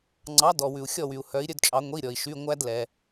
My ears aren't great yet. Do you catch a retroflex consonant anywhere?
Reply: no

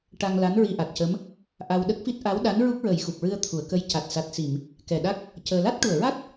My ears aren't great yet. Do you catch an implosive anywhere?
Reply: yes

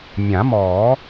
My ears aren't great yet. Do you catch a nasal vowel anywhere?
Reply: yes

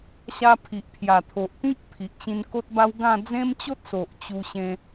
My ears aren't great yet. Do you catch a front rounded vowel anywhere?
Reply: no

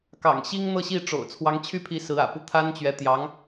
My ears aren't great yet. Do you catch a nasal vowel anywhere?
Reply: no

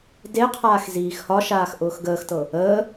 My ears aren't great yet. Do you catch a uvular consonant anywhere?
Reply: yes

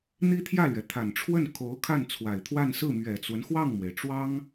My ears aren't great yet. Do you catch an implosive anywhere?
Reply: no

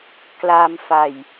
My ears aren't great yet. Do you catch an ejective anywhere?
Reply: no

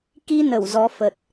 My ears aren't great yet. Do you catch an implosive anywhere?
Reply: no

